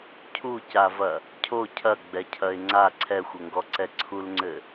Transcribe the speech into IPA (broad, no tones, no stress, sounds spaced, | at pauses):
cʰ u c a v ɐ | cʰ o cʰ ɐ ɡ͡b ɛ cʰ ɐ ɪ̯ ŋ͡ǀ a ǀʰ ɛ xʷ ɘ ŋ ɡ ɔ ǀ ɛ ǀʰ u l ŋ͡ǀ ɘ